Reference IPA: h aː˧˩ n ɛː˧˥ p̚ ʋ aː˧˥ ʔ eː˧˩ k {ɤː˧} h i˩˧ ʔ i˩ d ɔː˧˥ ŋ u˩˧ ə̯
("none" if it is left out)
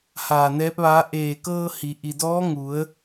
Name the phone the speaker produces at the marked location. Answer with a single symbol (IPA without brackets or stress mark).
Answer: ɤː˧